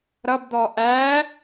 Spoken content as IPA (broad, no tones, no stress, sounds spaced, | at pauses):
ɾ ʌ b d̪ ɔ ʔ æ